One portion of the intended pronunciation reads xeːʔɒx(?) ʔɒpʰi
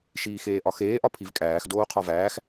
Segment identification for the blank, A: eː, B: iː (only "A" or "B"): A